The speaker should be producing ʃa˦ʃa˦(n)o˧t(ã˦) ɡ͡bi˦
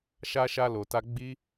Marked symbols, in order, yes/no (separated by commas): no, no